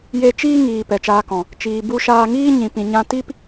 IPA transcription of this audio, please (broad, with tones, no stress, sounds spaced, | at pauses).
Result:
j e˧ t͡ʃ iː˦ ŋ iː˨ p ɛ˨ t͡ʃ aː˧ k ɔ̃˨ | t͡ʃ iː˨ b u˧ ʃ aː˧ ŋ iː˦ ɲ ĩ˨ p ĩ˨ ɲ ã˧ t i˦ p